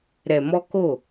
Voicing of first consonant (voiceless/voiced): voiced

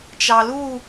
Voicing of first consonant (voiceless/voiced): voiceless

